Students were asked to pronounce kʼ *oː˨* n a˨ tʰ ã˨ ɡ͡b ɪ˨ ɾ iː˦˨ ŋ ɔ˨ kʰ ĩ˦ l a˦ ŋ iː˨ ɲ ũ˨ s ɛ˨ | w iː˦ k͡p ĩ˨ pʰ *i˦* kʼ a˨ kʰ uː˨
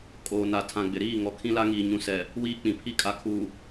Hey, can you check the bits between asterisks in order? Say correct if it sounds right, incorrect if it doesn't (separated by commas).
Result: correct, correct